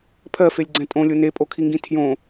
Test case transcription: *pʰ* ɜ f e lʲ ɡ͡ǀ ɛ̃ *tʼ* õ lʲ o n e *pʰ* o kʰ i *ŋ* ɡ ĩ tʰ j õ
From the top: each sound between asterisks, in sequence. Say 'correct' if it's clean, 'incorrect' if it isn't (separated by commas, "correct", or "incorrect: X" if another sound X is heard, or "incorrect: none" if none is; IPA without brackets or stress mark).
correct, correct, incorrect: pʼ, correct